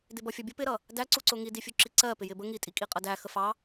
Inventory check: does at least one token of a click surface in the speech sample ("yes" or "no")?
yes